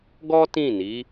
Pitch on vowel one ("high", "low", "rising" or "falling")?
high